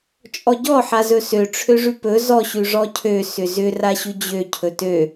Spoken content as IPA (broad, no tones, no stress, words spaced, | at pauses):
t͡ʃʼɔɟɔ ħazɵsø ʈ͡ʂʰøʐʉpɵ zɔ ɕʉʐɔcʰø sʏzʏ raɕʉd͡ʑø cʰɵtø